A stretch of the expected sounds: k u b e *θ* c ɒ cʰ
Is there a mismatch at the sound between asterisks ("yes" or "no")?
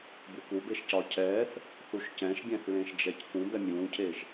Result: yes